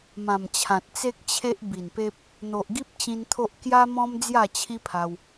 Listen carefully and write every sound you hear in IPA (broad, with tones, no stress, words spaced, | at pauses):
mã˨˩mt͡ɕʰã˨t̚ t͡se˦k̚t͡ɕʰe˦ʔ bi˨˩npe˦p̚ | n̪o˨ʔɡi˦p̚t͡ɕĩ˧n t̪ʰo˦ʔ kja˦ mɔ̃˦m d͡zja˥˧t͡ɕʰi˦pʰa˧w